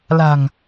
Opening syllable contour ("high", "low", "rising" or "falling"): low